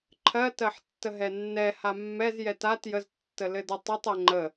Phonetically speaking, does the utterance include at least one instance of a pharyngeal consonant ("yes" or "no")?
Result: yes